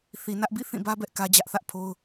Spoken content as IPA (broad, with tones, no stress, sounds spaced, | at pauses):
θ i˨ n ä˦ ʔ b ḭ˦˨ θ ĩ˦˨ b ä˦ b ɛ˦ ʔ k ä˦ d͡ʑ ä˦ ʔ θ ä˦ ʔ pʰ o˦ ʊ̯